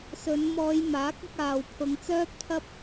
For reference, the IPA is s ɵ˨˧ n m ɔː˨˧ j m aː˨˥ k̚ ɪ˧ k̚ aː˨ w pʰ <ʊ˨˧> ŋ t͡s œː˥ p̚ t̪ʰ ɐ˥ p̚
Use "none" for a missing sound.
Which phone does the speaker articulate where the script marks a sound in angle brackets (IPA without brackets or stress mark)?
ʊ˨˧